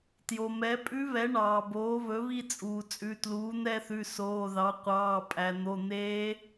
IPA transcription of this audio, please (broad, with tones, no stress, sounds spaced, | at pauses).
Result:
t j o˩ m ɛ˩˥ pʼ ʉ˧˥ β ɛ˩˥ ɳ ɑː˩ b oː˩˥ β ɵ˩˥ β i˦˨ t͡sʼ uː˩ t͡sʼ ʉ˩˧˩ t l uː˩˥ n̪ ɛ˦˨ θ ʉ˩˧˩ s oː˩˧˩ ð ɑ˩˥ qʷ ɑː˩˧˩ pʼ æ˩ n̪ o˩˧˩ n̪ eː˧˥